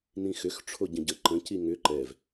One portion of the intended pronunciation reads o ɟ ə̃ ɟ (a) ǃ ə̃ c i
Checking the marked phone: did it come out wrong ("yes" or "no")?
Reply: yes